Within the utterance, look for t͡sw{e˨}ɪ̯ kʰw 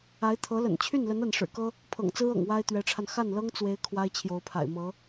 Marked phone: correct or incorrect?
incorrect: e˧˥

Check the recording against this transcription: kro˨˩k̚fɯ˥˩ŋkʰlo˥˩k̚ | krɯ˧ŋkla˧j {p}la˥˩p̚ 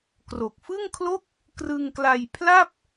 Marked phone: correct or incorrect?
incorrect: pʰ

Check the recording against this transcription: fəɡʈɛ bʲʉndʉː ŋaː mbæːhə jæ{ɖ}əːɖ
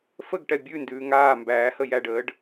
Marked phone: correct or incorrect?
correct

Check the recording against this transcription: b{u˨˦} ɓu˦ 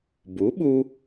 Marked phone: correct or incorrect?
correct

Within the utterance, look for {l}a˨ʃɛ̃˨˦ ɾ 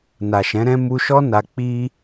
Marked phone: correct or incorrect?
incorrect: n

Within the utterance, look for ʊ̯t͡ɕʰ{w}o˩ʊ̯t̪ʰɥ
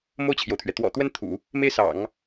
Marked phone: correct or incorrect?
incorrect: j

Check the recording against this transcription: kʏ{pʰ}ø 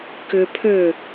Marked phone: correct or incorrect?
correct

